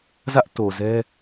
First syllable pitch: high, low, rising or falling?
high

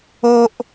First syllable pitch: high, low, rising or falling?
high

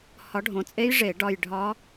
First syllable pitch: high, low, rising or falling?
rising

